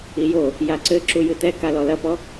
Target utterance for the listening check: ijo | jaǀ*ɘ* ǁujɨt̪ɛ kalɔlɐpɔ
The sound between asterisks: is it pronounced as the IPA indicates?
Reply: yes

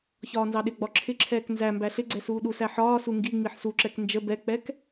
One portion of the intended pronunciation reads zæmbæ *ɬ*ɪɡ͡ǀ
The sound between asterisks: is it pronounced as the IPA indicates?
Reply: yes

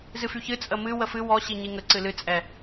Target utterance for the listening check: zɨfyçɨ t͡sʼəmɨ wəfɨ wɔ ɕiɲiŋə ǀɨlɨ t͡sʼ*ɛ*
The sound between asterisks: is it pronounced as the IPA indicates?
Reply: yes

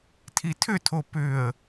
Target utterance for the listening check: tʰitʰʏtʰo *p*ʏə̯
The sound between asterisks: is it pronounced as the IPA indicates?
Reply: yes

